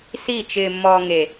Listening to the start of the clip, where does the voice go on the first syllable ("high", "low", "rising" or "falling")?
falling